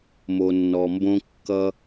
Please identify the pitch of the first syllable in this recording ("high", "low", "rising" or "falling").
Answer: low